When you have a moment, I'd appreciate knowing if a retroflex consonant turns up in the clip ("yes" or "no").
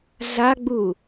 no